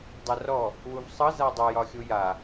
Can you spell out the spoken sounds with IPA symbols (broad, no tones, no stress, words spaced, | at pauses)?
dˤarɔ | wuvsˤɤ zadˤo jɒxʲuja